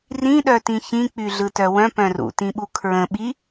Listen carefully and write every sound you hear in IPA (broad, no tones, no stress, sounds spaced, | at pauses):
r ĩ ɗ œ t ĩ ç ĩ k͡p y ɮ ɯ t œ w œ̃ p œ̃ r ṵ t ĩ ɓ u kʰ ɹ ə̃ ɓ i